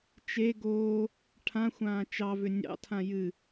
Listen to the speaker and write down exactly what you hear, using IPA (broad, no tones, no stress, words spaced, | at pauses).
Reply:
t͡ʃe ɡoː | ʈʰãxʷãː t͡ʃɑvʏ nʲɑ̰tʰã jɨ